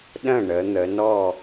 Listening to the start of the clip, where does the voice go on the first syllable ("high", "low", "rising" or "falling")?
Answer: falling